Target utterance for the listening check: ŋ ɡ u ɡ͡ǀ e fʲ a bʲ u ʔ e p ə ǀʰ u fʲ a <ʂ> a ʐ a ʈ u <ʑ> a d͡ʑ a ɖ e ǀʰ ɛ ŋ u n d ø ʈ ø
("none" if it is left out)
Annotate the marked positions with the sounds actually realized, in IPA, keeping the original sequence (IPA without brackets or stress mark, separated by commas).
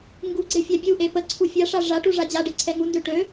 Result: ʂ, ʐ